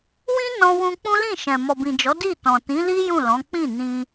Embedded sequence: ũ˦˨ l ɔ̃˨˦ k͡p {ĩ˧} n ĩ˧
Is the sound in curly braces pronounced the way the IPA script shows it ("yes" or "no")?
no